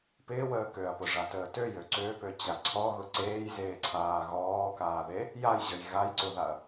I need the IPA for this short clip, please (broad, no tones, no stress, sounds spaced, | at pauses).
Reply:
p ɪː w əː k ø ɐ̯ p ʊ ʐ a t əː t ø j ø ǀ ø p ø t͡ɕ a ǀʰ ɔ ɣ ʊ ǀ eː j z eː ǀʰ aː ɣ ɔː k aː ð e | j a j ʑ ə j ɣ a j ǀ ʊ ð a ɐ̯